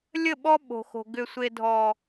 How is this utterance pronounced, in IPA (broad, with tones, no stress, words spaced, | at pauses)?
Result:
lʲə˦˨ɓɔ˦ ɓo̤˨xo̤˨ ɡʏ˨sʷe˨dʱɔ˨